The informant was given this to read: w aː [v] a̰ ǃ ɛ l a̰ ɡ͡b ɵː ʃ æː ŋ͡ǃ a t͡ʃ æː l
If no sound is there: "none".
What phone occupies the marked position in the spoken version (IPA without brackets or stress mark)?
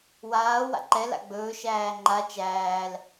w